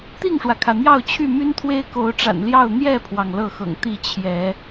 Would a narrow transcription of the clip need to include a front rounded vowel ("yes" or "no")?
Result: yes